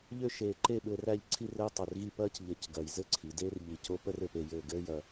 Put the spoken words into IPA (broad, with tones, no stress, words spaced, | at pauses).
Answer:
ʎø˥˧ʃeː˧˩ǃe˥˧ ɓɘː˧ræ˥˧ʎǀʰi˥˧rɘː˥ tˤø˧˩rɣi˥˧ pɐː˥c ʎə˧cɡɐ˧˩j zɘ˥ǀʰi˩˧ de˥rʎi˧˩c o˥pə˥r ɘ˩˧pe˥˧jɘː˥˧ ɡɘː˥jɐ˧